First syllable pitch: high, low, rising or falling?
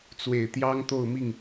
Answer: low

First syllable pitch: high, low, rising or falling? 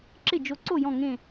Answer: falling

